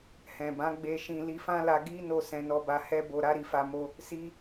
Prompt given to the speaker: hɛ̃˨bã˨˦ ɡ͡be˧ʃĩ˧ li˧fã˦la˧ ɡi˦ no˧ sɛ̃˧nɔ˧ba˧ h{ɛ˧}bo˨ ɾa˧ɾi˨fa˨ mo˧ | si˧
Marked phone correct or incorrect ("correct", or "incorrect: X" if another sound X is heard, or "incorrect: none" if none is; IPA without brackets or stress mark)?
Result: correct